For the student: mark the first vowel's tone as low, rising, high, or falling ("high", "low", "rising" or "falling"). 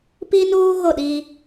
high